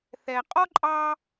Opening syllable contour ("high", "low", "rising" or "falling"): low